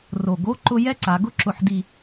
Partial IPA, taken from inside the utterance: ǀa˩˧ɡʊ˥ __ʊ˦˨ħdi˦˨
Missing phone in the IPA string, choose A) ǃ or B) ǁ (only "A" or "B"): B